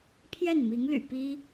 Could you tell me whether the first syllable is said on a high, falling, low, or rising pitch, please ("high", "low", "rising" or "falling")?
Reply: falling